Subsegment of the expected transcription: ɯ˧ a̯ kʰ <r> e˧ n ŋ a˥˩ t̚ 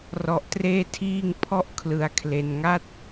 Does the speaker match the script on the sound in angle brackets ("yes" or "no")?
no